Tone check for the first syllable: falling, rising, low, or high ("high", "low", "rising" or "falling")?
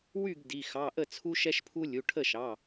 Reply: falling